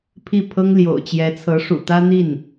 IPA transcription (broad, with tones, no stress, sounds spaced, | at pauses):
pʰ i˥˩ pʰ ɤ˥ ŋ l j o̰˨˩ ʊ̯ t͡ɕ j ɛ˧˥ t͡sʰ ɤ˧˥ ʂ ṵ˨˩ t̪ ä˥ n̪ i˥˩ n